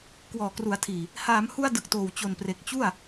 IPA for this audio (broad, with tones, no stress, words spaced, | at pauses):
kwɔː˨˩kru˩˦a̯tʰiː˨˩ | haː˩˦mhu˧a̯ dɯ˨˩k̚toː˨˩w t͡ɕo˨˩npre˨˩k̚ t͡ɕu˥˩a̯